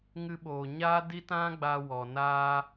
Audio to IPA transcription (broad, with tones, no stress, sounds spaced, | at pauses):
ŋ ɨ˧ ɓ oː˨ ɲ aː˦ d i˦ t ã˦ ɡ͡b a˧ w ɔ˨ n aː˧